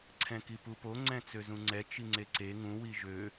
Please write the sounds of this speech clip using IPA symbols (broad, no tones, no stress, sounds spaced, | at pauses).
ǀʰ ɛ̃ k i p u p o ŋ͡ǀ ɛ̃ t͡s ø z ũ ŋ͡ǀ ɛ t͡ʃ i ŋ͡ǀ e ǀ e ŋ ũ w i ʒ ø